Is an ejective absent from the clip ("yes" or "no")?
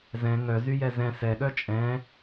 no